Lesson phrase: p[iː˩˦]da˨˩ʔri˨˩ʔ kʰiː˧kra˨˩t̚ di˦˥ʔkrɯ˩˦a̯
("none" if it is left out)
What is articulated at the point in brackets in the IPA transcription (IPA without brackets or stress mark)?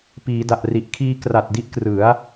iː˩˦